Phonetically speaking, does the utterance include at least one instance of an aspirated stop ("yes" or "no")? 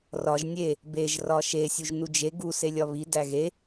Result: no